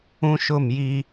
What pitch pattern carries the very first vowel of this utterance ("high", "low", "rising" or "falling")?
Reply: high